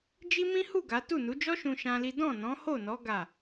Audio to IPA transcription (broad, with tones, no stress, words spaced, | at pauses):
d͡ʒi˦mĩ˦ hu˦˨ ɡa˨˦ tu˦˨nu˨˦d͡ʒɔ˦ʃũ˧ ʃã˦li˦ dɔ̃˦˨nɔ̃˨˦ho˦˨nɔ˨˦ ɡa˦˨